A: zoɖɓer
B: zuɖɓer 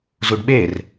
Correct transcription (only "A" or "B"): B